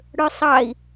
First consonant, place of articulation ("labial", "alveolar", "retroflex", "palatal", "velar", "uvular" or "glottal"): retroflex